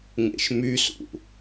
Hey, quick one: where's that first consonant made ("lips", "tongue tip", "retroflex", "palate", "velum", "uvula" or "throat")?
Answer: velum